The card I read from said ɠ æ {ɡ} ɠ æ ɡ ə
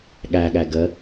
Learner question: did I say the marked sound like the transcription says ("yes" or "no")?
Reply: no